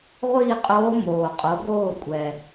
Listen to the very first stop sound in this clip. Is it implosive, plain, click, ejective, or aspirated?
ejective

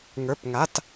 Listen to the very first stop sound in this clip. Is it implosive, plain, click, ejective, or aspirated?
plain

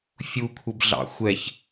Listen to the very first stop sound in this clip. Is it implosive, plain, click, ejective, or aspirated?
aspirated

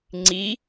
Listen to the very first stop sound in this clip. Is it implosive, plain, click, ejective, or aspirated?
click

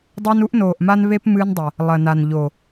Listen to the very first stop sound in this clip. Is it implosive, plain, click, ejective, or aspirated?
plain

